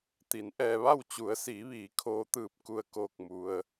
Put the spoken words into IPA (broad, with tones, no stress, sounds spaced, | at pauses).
t̪ i˩˧ n ʔ ɛː˧ ʋ a˥˨ w t͡ɕ u˩˧ ə̯ s iː˩˧ ʋ iː˩˧ kʰ oː˧ t̪ ɯː˧˩ p̚ k u˧˩ ə̯ k oː˧˩ k̚ m u˩ ə̯